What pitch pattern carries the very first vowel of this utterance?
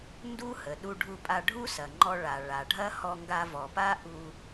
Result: high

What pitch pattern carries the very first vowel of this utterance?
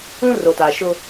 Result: high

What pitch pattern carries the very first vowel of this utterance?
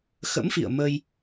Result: rising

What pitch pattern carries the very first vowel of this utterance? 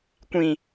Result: low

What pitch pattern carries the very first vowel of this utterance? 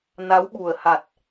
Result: rising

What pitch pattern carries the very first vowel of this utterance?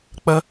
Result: high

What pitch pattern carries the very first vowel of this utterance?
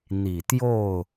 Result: low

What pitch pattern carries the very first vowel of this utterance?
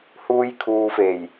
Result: high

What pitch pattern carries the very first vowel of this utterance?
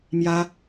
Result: high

